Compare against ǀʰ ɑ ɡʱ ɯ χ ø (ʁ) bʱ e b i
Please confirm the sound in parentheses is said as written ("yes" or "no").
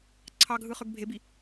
no